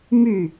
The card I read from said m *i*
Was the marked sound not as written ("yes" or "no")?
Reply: yes